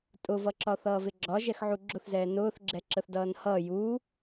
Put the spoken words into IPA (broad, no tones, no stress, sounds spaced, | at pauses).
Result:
tʼ ʊ v ʌ ǁ ɒ θ ʌː v ɪ ɡ͡ǁ ɒ ʒ ɛ x ʕ u ɡ͡ǁ ʊ θ z ɛː n ʊː θ ɡ͡ǁ ɛ ǁ ə θ d ʌː n h ʌː j u